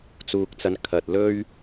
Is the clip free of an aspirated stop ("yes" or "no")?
no